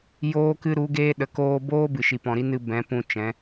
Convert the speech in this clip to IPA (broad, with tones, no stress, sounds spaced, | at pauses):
j oː˧ k ɨ˧ ɾ u˨˦ ɡ eː˧ ɗ ə˨ k oː˧ b oː˦ b ɨ˨ ʃ i˨ p ɔ̃˨ ɾ i˦ n ɨ˧ b ɛ̃˨˦ p ũ˧ t͡ʃ ɛ̃˨˦